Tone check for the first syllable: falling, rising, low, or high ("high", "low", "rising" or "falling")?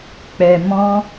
low